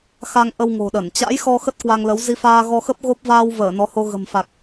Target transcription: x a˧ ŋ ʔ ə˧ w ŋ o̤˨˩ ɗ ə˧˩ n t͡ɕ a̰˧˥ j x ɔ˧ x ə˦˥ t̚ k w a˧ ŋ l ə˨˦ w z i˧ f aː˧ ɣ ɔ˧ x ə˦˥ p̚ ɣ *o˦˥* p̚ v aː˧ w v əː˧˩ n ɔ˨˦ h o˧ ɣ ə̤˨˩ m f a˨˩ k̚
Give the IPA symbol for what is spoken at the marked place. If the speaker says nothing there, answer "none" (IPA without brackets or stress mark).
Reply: o˦˥